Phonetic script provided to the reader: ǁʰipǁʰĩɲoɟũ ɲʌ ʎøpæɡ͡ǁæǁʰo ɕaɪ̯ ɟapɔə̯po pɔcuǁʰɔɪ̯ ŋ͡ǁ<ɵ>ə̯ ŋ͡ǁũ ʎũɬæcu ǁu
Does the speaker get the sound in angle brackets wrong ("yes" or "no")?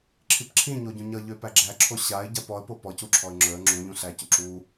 no